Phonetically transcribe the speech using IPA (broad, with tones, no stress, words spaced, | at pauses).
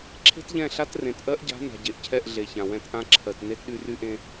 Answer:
ǁʰe̤˦tʎɛ̃˦˨ɬa˦t rẽ˨tʔɜ˦ʔɟa̤˨˦ na̤˨ɟe˨ʔcʰɛ˦˨ʔ ɮe˨çã˨wɛ̃˧t ʔã˧ ǁʰɜ˨t ne˦tɗy˧ry˦ʔẽ˦